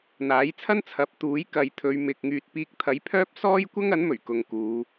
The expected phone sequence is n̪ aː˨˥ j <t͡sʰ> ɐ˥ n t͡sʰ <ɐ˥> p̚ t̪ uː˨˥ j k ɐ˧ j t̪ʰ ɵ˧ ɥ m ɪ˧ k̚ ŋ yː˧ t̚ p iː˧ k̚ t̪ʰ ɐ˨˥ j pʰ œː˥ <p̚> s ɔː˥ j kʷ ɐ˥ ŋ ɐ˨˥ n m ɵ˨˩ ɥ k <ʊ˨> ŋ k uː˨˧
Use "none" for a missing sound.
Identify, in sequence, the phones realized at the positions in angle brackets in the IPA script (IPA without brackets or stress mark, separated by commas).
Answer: t͡sʰ, ɐ˨˥, p̚, ʊ˨